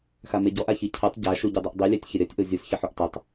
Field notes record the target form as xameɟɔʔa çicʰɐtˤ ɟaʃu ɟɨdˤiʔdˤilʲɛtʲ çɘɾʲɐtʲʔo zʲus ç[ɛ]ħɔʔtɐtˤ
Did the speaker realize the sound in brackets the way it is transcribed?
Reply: no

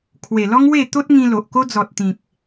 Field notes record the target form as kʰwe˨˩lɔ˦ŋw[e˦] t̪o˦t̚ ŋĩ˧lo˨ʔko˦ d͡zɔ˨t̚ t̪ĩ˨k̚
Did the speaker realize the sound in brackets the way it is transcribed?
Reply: no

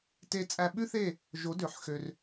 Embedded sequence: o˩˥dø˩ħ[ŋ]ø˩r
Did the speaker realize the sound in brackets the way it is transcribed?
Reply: no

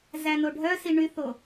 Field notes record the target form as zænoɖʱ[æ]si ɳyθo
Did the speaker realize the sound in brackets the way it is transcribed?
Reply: no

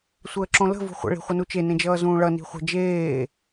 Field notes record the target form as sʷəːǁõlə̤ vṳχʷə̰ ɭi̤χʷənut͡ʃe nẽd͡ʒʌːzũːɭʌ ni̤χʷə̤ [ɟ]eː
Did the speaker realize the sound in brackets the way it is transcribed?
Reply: no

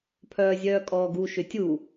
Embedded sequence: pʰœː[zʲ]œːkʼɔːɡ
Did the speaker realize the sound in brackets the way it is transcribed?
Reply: yes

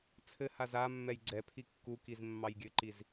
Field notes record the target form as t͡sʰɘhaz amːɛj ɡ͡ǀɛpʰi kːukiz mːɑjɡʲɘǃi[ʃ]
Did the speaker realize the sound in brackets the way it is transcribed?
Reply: no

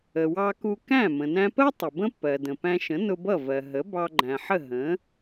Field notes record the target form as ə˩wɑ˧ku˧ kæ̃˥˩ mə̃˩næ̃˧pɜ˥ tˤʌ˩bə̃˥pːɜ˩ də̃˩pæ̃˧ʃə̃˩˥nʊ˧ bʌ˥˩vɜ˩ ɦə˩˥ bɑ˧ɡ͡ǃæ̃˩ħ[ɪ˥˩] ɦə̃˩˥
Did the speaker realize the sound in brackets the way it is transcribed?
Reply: no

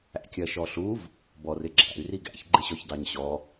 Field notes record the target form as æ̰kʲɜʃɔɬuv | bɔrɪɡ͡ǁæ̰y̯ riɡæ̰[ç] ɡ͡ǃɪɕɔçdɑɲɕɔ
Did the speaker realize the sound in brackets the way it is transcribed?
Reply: yes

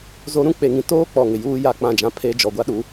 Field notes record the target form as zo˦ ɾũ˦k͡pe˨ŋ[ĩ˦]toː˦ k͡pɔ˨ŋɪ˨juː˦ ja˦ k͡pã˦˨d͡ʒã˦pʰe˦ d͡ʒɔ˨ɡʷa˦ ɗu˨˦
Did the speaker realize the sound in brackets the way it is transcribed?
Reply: no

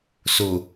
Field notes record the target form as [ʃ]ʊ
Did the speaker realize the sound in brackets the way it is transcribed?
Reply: no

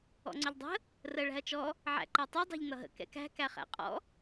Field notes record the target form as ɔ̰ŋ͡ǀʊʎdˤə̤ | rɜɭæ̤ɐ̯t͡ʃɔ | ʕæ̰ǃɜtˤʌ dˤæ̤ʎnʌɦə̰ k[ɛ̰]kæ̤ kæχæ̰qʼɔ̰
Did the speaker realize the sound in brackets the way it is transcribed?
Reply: yes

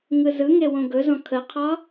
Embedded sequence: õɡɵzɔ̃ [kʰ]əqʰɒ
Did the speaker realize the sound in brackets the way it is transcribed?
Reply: yes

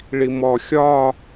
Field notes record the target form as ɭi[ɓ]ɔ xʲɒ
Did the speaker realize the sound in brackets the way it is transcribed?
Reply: no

